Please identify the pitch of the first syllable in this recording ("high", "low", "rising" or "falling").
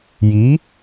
rising